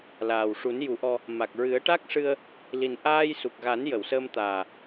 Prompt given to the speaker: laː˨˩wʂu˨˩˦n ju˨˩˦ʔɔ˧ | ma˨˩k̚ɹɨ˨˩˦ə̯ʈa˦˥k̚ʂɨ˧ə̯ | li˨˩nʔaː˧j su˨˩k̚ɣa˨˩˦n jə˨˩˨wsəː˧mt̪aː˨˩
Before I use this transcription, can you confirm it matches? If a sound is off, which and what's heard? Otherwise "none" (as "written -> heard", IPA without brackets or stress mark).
none